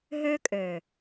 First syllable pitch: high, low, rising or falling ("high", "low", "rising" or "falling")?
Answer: high